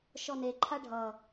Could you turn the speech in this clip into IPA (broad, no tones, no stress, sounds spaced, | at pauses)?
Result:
ʃ ɔ n e ǃʰ a ɖʱ ʌ